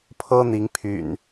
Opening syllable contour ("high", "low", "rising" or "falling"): high